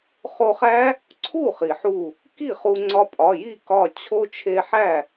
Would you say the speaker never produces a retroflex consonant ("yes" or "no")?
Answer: yes